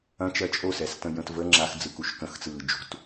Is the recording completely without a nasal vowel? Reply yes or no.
no